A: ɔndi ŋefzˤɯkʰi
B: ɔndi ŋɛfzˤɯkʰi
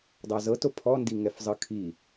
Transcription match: B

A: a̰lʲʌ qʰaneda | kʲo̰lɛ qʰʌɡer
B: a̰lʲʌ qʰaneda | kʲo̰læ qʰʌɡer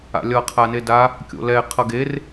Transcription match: A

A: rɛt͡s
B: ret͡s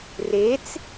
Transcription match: B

